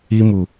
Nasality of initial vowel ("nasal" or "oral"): oral